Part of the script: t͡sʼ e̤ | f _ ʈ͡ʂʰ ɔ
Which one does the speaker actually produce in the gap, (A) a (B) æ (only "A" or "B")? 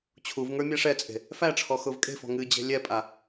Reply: B